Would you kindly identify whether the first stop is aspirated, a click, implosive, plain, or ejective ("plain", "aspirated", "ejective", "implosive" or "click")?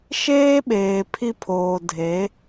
implosive